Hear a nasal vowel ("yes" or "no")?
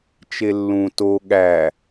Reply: yes